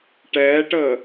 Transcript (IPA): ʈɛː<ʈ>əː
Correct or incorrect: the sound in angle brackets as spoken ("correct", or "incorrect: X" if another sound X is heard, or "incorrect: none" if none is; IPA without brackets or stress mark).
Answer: correct